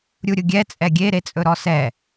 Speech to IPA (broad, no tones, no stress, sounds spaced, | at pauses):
ɾʲ u ɾʲ ʊ ɡʲ ɛ t͡sʼ ɛ ɡʲ e ɾ e t͡sʼ ɵ ɾ ɔ s ɛ